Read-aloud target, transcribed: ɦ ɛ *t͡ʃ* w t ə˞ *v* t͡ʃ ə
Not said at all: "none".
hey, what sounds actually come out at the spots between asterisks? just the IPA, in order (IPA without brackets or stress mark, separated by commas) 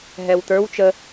none, w